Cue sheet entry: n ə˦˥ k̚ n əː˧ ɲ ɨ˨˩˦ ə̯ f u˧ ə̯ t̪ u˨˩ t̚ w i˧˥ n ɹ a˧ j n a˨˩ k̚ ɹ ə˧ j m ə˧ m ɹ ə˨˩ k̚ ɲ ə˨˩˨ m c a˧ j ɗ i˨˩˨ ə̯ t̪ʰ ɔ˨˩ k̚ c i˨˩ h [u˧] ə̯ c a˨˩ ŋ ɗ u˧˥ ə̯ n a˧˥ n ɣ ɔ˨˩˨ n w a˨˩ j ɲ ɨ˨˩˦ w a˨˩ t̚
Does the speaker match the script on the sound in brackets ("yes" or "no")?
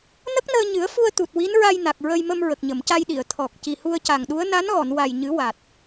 yes